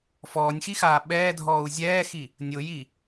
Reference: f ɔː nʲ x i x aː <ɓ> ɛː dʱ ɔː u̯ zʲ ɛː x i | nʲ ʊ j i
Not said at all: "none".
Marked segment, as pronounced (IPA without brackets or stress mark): ɓ